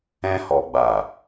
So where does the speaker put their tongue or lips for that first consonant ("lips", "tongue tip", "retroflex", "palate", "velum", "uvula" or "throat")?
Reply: throat